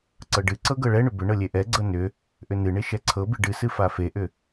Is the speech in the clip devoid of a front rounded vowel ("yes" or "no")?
no